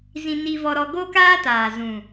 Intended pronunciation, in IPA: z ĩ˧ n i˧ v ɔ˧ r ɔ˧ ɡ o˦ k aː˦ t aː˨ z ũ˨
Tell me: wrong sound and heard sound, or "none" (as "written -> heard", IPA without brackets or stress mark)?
r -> ɾ